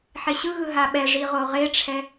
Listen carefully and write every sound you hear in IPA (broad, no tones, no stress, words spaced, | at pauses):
ħeɕɯɣɯ ɦaɓɛʐi ʁoʁeʈ͡ʂʰɛ